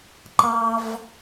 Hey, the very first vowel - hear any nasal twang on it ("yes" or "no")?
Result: no